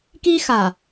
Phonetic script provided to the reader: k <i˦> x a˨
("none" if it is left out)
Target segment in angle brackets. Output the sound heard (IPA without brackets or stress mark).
i˦